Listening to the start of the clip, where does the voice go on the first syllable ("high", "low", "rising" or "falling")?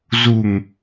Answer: low